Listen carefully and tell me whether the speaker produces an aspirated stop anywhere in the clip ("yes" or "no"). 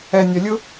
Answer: no